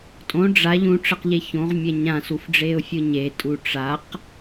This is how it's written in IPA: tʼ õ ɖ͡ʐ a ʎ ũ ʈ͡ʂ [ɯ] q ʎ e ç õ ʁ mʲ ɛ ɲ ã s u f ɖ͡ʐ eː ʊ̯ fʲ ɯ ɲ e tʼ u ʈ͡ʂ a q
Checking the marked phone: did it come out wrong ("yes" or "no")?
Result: yes